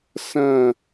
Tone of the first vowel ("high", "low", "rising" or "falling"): falling